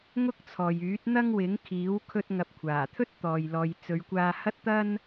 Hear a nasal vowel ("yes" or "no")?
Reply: no